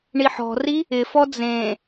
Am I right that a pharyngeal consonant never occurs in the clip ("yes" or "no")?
no